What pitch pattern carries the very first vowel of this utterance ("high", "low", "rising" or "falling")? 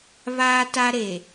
high